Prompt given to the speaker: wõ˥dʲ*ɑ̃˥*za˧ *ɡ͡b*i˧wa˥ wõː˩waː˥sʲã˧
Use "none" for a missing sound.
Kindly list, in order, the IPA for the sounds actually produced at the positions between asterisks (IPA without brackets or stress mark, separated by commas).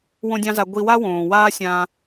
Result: ɑ̃˥, ɡʷ